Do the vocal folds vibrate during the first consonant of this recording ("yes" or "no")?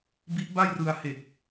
yes